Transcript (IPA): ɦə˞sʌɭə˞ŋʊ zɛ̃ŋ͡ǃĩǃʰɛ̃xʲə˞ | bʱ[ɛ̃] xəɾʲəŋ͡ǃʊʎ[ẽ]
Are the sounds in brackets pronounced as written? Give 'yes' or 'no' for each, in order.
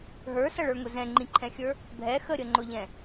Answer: no, no

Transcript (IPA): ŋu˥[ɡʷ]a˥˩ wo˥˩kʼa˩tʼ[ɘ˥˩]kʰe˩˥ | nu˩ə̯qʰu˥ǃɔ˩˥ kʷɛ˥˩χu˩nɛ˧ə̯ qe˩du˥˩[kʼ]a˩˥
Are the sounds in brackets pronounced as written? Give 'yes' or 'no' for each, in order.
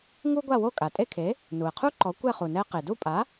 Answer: yes, no, no

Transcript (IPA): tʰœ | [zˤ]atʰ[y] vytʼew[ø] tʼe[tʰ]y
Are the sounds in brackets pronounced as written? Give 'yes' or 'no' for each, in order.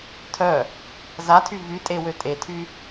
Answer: no, yes, yes, yes

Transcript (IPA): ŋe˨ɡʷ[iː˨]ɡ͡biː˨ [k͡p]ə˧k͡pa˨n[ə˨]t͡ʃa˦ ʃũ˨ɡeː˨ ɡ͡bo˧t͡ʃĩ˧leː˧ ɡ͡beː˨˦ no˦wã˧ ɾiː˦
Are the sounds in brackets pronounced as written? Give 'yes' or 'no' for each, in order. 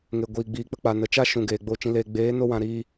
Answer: yes, yes, yes

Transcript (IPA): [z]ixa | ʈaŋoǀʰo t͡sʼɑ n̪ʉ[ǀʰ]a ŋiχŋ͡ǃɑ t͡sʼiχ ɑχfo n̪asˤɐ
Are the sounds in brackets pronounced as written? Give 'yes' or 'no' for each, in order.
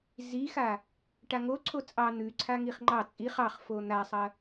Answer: yes, yes

